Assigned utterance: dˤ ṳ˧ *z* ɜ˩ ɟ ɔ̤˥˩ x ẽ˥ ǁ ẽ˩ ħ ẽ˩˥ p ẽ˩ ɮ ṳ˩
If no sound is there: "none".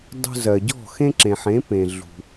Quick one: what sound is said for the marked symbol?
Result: z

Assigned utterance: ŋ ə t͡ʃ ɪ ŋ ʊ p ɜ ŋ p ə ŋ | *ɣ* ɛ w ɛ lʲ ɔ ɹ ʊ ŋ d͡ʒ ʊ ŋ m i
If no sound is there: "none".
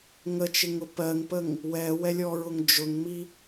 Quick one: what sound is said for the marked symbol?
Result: w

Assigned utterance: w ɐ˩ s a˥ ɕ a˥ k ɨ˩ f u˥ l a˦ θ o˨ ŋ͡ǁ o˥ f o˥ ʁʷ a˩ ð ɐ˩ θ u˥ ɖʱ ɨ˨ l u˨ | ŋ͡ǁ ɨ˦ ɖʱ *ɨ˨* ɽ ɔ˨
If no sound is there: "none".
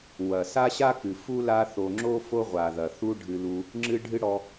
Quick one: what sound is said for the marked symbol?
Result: ɨ˦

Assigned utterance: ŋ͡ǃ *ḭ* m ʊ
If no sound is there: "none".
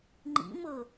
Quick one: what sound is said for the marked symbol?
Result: ḭ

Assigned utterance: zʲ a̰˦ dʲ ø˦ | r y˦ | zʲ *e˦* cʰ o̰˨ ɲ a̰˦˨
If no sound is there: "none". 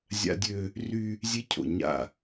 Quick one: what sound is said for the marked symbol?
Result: e˦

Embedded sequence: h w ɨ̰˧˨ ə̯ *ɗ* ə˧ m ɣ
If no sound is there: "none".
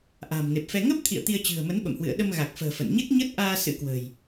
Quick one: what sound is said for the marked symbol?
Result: ɗ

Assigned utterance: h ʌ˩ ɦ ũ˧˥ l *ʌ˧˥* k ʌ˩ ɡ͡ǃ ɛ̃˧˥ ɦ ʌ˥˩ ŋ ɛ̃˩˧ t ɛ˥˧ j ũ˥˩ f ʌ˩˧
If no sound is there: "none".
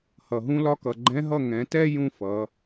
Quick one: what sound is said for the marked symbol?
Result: ɒ˧˥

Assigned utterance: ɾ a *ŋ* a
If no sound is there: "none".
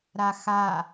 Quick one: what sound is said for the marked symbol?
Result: x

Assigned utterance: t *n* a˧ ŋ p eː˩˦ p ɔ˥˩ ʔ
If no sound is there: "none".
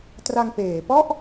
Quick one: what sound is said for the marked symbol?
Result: r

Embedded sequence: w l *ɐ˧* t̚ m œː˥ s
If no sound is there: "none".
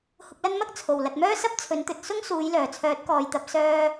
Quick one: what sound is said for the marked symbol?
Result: ɐ˨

